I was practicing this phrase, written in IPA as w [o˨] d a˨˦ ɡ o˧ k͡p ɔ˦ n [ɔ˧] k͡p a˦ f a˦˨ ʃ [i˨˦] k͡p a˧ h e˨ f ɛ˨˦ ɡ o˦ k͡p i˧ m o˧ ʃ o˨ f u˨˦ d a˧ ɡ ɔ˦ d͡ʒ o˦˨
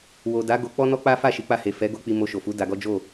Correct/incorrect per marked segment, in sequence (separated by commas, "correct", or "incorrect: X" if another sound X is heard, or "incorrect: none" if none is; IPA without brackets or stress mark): correct, incorrect: ɔ˦, correct